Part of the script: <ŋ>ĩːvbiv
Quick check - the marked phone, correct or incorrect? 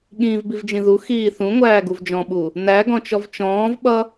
incorrect